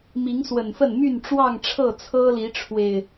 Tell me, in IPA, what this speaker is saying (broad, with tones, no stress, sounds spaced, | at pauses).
m i˨˦ ŋ s w ə˨˩ n f ə˥˨ n m y˥˨ n ʈ͡ʂ w ɑ˥˨ ŋ ʈ͡ʂʰ ɤ˥˨ t͡sʰ ɤ˦ l i˨˦ ʈ͡ʂʰ w e˨˩ ɪ̯